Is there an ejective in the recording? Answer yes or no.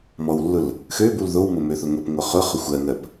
no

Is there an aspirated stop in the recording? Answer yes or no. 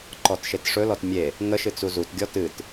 no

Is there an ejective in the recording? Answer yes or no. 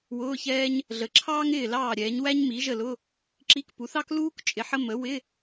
yes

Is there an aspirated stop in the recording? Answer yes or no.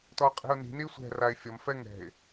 no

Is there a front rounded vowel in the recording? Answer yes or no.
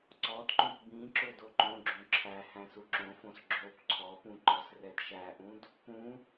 no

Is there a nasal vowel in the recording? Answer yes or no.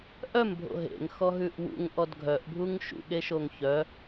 no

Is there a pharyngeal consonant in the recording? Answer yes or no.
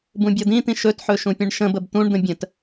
yes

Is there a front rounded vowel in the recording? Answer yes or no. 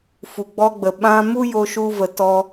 no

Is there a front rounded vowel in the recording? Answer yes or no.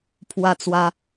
no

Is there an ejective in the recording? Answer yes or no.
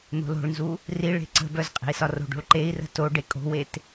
yes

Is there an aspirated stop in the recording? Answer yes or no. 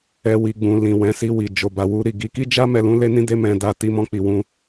no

